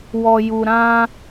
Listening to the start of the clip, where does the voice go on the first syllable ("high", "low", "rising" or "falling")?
low